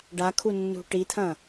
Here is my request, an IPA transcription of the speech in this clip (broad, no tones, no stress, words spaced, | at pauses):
ɖakʰunːṳ ʈit̪ʰɐ̃